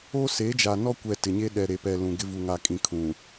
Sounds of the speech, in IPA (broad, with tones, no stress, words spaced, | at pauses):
o˦se˨˦d͡ʒa˨nɔ˦ kʷɛ˨ tɪ˨ɲe˦ ɗɛ˨ ɾe˨pɛ˨ lũ˨ɡɪ˦ vu˨ŋaː˨kʼĩ˨ kʰũ˨